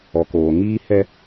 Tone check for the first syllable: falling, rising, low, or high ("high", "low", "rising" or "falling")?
low